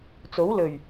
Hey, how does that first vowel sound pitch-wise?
rising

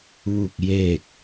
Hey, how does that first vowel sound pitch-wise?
falling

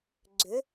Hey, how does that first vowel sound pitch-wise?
rising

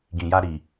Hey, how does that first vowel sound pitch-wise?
low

